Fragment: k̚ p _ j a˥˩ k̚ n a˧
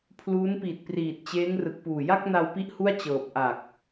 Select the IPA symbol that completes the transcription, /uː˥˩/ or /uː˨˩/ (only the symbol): uː˨˩